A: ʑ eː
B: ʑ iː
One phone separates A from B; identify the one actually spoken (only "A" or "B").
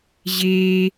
A